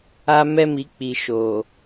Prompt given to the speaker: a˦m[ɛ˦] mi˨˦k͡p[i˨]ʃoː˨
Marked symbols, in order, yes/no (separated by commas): yes, yes